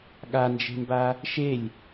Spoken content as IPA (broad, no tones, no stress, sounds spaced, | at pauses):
ɠ a n d͡ʒ e̤ m b a | ʃ e lʲ